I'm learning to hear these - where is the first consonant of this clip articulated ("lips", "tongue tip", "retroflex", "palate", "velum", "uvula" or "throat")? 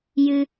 palate